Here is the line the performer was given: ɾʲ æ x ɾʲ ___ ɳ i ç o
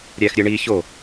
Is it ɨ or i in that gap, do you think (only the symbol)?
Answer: ɨ